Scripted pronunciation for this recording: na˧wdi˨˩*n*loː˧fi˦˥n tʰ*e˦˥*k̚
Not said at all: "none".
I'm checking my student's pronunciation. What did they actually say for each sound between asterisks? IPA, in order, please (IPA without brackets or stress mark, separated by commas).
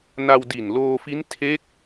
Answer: n, e˦˥